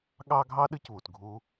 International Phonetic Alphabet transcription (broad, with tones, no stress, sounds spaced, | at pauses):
ɠ ɑ˦ ɡʱ ɑ˦ ɗ ɨ˦ c β u˨ t ɡʱ u˦